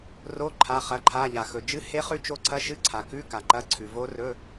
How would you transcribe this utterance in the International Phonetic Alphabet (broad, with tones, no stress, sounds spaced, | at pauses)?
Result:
r o˧˥˧ ǃʰ a˧˥˧ χ ɐ˧˥˧ ǃʰ a˧˥˧ ʎ a˨ x ɵ˨ d͡ʒ ɨ˧˥ h e˧˥ χ ʉ˧˥ t͡ʃ o˧˥ ǀʰ ɐ˧˥˧ ʃ ɨ˧˥ ǀʰ a˨ k ʉ˧˥˧ k a˨ ǃ ɐ˧˥˧ ǀʰ ʉ˨ v o˧˥ r ɵ˧˥˧